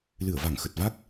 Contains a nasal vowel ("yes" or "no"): no